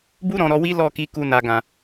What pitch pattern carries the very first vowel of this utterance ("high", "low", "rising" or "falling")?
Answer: high